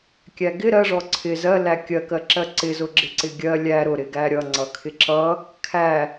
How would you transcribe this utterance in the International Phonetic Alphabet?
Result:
kʲ æ ɡ ɪ ɾ ɜ ʐ ɔ ǀʰ ɪ z ɜ l æ kʲ ɜ k ɜ ǁ ɜ ǀ ɪ z ʊ ɡ͡ǁ ɪ ǀ ɪ ɡʲ ɜ lʲ æ ɾ ʊ ɾ ɪ ɡ æ ɾʲ ʌ ŋ͡ǀ ʌ kʰ ɪ ǁ ʌ | kʰ æ

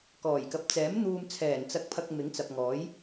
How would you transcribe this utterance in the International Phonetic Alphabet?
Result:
k ɔː˨˩ j k ɐ˨ p̚ t͡s ɛː˨˥ m n̪ uː˨ m t͡sʰ ɛː˨˩ n t͡s ɐ˨˥ k̚ pʰ ɐ˨ k̚ m ɪ˨˥ ŋ t͡s ɐ˨ p̚ ŋ ɔː˨˥ j

